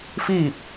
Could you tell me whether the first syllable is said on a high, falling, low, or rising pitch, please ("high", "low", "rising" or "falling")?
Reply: falling